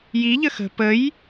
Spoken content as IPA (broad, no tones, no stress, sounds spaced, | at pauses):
j i ʎ ə x ə̤ p ə j